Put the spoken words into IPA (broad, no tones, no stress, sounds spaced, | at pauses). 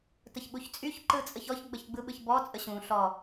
t ə ç ɓ u ç t͡sʼ y ç ǃ ɯ t͡sʼ ə ç ɔ ç ɡ͡b ə ç ɡ͡b ɯ ɓ ɯ ç b ɔ t͡sʼ ə ɕ ũ ɬ ɔ